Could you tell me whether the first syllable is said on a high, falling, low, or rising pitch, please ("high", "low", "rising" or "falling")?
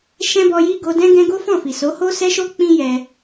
high